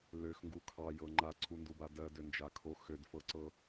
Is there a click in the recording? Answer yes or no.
yes